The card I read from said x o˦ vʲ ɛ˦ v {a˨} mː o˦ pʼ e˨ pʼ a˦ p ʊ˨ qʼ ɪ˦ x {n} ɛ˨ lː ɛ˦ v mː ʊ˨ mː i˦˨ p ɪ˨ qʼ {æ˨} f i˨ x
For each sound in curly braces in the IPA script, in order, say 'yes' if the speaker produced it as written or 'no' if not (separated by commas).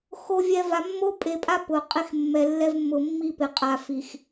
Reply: yes, no, no